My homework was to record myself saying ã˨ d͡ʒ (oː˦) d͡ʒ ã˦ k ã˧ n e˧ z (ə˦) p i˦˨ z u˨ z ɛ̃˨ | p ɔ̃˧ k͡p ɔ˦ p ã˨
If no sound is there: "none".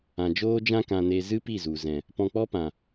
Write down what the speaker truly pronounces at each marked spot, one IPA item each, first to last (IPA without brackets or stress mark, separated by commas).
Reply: oː˦, ɨ˦